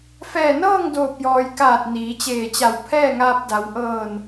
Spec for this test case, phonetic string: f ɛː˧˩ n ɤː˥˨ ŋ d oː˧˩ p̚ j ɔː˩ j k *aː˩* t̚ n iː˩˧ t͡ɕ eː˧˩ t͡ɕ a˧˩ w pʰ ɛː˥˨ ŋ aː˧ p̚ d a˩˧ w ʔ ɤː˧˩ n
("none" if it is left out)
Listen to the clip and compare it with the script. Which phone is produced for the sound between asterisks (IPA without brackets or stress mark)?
aː˧˩